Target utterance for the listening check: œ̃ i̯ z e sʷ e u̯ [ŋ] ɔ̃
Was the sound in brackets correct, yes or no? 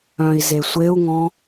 yes